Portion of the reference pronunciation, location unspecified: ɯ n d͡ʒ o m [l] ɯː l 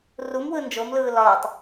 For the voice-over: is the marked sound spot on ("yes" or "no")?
yes